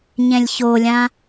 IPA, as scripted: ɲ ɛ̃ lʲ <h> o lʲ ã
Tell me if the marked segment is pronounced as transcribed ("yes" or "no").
no